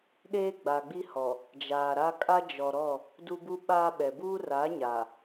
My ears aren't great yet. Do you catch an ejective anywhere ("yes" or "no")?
yes